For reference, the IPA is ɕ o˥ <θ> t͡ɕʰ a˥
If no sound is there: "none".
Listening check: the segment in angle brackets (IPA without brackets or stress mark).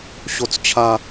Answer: t͡s